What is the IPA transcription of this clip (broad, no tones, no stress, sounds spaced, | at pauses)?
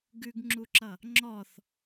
ɡ ʉ ɡ ŋ͡ǁ u ǁ ʌ | ŋ͡ǁ ɔ θ